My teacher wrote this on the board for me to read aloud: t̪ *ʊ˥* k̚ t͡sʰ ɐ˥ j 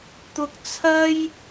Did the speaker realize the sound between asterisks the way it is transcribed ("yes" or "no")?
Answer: yes